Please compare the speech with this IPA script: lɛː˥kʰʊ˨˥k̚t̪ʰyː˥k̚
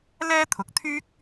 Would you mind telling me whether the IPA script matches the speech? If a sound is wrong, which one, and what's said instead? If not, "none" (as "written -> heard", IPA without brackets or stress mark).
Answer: kʰ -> t̪ʰ